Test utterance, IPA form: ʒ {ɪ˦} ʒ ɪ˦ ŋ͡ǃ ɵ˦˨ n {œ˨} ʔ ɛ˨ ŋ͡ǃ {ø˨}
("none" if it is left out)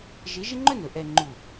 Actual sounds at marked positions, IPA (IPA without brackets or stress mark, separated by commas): ɪ˨˦, ɵ˨, u˨